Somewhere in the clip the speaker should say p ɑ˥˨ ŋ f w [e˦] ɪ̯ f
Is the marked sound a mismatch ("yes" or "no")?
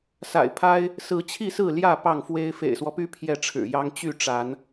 no